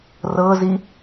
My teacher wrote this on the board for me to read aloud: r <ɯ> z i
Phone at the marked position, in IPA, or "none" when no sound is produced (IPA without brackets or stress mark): ɤ